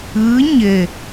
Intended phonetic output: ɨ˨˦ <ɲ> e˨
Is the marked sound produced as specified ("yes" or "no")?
yes